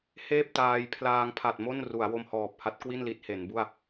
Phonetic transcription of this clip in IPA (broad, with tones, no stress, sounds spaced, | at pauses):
h eː˥˩ p̚ t aː˧ j pʰ l aː˧ ŋ pʰ a˨˩ t̚ m o˥˩ n r u˩˦ a̯ w o˧ m h ɔː˨˩ p̚ h a˦˥ t̚ k w i˥˩ n l i˦˥ t̚ h e˩˦ n b u˥˩ a̯